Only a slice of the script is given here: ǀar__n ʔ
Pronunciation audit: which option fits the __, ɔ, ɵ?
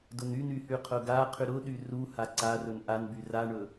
ɵ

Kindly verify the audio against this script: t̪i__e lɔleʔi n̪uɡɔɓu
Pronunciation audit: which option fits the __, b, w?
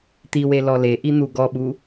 w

